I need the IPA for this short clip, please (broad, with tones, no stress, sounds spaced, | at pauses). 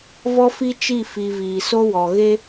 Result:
v ɔ˦ f i˦ t͡ʃ i˦˨ f i˨ v iː˨ s o˦ w ɔ˨ ɣ e˦